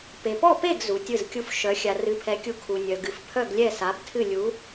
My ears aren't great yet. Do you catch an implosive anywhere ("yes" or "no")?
no